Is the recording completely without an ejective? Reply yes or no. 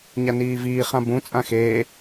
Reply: no